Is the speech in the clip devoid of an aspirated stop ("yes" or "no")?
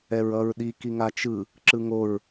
yes